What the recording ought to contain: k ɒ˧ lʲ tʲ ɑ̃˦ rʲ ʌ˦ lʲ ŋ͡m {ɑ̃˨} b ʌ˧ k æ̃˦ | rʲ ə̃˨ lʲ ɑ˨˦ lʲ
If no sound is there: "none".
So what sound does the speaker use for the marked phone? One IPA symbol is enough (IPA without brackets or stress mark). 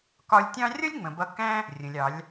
ə̃˨